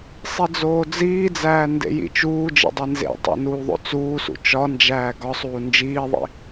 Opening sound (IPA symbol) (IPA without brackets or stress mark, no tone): sˤ